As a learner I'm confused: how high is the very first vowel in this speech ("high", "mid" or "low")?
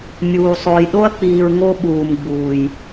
high